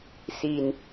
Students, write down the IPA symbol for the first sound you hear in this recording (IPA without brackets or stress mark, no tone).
s